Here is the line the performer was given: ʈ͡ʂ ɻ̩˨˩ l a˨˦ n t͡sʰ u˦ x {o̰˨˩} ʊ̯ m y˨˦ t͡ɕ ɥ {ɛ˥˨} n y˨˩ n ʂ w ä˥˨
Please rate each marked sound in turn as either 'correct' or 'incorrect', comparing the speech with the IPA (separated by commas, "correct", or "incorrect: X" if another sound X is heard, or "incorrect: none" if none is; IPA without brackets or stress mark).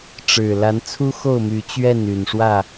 incorrect: o˥˨, correct